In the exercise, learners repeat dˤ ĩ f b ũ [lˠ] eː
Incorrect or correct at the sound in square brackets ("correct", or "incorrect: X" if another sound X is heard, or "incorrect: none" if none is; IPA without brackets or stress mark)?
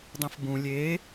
incorrect: lʲ